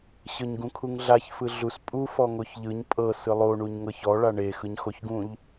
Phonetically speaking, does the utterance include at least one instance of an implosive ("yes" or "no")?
no